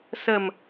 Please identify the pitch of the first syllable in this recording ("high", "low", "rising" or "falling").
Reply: low